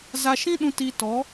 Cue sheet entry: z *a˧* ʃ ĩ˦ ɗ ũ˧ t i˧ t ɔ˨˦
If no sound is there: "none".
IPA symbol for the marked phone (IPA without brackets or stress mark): a˧